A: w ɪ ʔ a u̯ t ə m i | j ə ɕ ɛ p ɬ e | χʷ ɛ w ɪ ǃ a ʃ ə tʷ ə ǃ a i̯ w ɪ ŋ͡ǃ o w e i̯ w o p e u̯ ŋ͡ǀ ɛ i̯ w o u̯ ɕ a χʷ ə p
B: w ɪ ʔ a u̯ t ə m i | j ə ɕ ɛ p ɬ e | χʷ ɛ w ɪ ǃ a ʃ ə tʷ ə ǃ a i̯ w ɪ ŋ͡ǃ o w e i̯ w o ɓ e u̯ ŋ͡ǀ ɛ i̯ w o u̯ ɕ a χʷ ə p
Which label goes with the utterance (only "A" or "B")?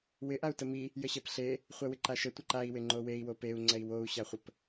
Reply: A